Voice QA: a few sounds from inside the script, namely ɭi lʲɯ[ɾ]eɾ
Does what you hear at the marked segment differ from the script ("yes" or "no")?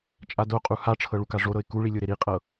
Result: no